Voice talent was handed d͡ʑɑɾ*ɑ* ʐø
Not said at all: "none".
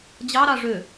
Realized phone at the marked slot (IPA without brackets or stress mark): ɑ